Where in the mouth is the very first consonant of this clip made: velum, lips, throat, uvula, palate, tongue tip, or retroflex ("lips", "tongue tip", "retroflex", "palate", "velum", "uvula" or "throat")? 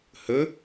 throat